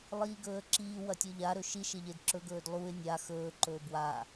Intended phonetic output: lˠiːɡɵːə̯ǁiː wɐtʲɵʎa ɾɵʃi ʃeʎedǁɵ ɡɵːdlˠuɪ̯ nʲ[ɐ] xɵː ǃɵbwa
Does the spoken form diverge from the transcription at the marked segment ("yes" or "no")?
yes